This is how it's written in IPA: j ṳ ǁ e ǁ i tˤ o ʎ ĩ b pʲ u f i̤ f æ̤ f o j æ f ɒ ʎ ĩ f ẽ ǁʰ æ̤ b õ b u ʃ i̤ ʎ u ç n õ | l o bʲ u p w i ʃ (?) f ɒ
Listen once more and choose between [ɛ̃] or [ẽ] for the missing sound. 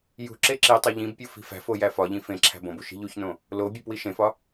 ẽ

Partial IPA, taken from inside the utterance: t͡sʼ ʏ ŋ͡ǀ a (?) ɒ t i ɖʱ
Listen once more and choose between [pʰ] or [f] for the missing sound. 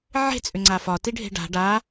f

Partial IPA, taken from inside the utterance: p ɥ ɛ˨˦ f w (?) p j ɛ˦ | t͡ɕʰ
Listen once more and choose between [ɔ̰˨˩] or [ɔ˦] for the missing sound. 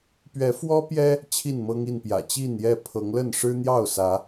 ɔ˦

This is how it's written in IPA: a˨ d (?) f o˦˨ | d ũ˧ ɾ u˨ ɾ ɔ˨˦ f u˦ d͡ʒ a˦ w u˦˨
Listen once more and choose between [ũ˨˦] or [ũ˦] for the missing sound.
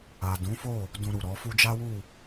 ũ˨˦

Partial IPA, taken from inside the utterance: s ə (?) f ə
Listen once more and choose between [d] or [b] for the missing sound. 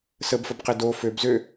b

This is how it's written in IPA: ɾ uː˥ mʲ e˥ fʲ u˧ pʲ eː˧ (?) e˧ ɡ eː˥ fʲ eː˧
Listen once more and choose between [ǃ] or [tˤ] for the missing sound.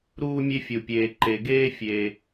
ǃ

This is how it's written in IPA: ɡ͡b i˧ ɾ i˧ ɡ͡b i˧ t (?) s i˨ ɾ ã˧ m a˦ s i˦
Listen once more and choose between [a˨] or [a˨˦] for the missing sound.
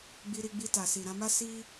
a˨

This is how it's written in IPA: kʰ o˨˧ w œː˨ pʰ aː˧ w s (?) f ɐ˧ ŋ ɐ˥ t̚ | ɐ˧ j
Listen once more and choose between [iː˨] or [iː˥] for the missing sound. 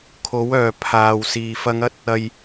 iː˨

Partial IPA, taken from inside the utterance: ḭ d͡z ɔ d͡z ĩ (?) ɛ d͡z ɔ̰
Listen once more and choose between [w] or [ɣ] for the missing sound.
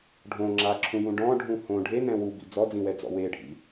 w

